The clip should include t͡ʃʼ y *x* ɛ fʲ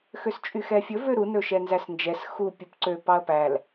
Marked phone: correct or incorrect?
correct